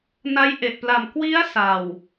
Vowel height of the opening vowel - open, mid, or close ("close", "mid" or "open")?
open